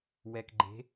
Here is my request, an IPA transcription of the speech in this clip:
w ɛ˨ k ɡ͡ǃ e̤˨˦

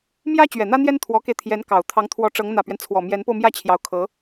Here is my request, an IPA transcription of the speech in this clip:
m j ä˥ t͡ɕ ɥ ɛ˨˩ n̪ ä˥ n̪ j ɛ˥ n t̪ʰ w ɔ˧˥ k e˧ ɪ̯ t̪ʰ j ɛ˧˥ n k ɑ˨˩ ʊ̯ t̪ʰ ɑ˧˥ ŋ t̪ʰ w ɔ˧˥ ʈ͡ʂ ɤ˧˥ ŋ n̪ ä˨˩ p ɥ ɛ˦ n t͡sʰ w ɔ˨˩ m j ɛ˧˥ n p o˧ ʊ̯ m j ä˥˩ t͡ɕʰ j ɑ˧˥ ʊ̯ kʰ ɤ˧˥

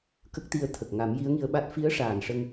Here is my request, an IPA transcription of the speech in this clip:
k ə˦˥ k̚ t̪ i˧ ə̯ t̪ʰ ə˨˩ k̚ ŋ a˨˩˦ m j i˧˥ ə̯ ŋ i˧ ə̯ ɓ a˦˥ t̚ f i˧˥ ə̯ ʂ aː˨˩ n ʂ ə˧ ŋ

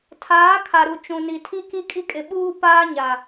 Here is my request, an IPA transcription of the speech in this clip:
tʰ aː˨˦ kʰ a˨ ɾ u˨ t͡ʃ ũ˨ n i˨ tʰ i˦ k i˦ kʼ i˦ kʼ ɪ˨ ɓ uː˦ p aː˦ ɲ a˨

